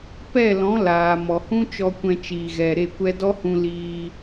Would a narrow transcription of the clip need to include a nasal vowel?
yes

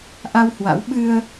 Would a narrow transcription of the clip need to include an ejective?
no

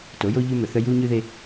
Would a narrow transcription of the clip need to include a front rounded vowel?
yes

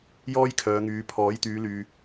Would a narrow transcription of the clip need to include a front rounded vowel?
yes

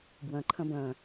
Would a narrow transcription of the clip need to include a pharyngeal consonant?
no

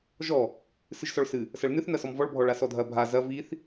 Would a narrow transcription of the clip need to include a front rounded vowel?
no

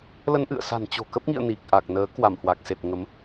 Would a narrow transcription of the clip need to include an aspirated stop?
no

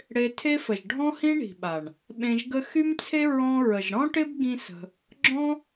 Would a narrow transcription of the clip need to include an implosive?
yes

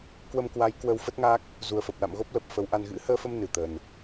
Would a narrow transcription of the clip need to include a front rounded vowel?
no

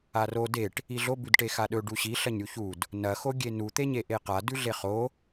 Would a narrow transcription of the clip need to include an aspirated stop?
no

